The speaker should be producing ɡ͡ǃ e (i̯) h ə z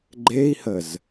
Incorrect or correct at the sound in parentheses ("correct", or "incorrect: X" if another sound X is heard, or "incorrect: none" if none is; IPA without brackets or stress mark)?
correct